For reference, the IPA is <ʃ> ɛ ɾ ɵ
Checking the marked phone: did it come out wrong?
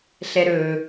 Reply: yes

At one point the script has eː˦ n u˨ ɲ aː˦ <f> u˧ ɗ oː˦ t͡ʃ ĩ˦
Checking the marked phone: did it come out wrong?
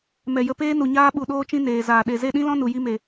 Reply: yes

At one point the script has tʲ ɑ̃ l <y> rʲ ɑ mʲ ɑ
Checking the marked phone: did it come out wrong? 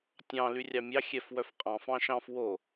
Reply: no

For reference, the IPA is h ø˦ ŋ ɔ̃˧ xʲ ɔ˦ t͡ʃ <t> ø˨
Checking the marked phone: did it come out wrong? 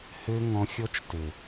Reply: no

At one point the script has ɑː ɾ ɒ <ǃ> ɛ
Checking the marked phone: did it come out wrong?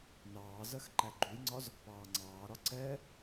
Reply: yes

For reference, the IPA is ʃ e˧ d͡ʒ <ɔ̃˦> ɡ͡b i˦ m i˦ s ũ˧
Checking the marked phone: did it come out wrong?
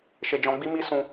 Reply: yes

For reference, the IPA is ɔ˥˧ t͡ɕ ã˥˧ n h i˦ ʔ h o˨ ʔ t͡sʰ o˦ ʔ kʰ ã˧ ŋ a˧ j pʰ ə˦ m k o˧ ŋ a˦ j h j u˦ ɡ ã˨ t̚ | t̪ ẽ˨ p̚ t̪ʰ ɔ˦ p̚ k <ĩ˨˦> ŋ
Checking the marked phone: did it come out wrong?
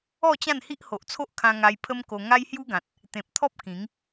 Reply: no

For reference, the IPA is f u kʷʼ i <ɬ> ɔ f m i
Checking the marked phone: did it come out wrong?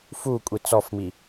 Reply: yes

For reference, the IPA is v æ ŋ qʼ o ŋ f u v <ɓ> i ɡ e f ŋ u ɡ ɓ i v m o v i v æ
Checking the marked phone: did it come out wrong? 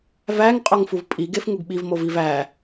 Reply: yes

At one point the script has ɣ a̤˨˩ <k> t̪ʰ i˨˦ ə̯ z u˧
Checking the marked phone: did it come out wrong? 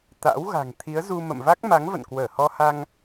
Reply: yes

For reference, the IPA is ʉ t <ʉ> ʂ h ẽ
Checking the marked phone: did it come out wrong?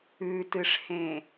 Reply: yes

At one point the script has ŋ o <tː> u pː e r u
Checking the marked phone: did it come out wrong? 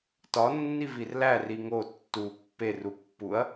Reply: no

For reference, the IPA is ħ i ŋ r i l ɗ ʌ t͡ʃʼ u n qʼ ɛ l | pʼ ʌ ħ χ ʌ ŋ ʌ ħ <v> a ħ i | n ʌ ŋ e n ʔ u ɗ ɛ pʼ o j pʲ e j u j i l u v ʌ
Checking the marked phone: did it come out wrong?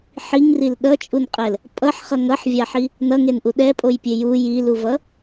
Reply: yes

